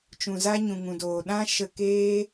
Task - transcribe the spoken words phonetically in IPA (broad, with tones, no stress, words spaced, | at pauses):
t͡ʃũ˨za˦ɲũ˨ ŋũ˨doː˨ ɗã˦ ʃə˧keː˦